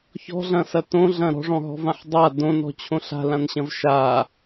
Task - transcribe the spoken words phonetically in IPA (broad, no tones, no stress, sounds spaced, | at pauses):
ç ɔ̤ ɮ ɐ̃ s ɐ t õ ɮ ɐ̃ ɾ ɔ̤ ʐ ɔ̃ ɦ ɔ̤ v ã ħ dˤ a d õ n ɔ̤ t͡ɕʰ õ ɬ a̤ l ã n ɕ ɐ̃ v ʃ a